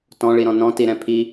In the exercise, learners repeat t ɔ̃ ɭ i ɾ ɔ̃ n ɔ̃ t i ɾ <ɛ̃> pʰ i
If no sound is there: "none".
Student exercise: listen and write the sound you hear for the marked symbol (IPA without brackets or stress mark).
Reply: ɛ̃